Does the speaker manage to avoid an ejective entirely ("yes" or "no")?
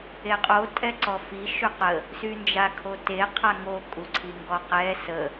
no